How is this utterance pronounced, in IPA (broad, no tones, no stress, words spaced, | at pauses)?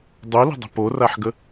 dˤulə̤dˤə̤ poraħɡə